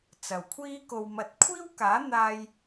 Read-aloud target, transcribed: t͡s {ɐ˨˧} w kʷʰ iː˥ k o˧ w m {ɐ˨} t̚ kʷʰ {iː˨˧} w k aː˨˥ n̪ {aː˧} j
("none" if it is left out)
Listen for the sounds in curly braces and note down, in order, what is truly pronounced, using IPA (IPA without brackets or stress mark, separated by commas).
ɐ˨, ɐ˨, iː˥, aː˧